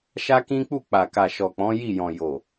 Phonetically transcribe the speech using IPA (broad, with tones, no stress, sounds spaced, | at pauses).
ʃ a˦ k ĩ˦ k͡p u˦˨ k͡p a˨ k a˨ ʃ ɔ˨ k͡p ɔ̃˨˦ j i˦˨ j ɔ̃˨ j o˨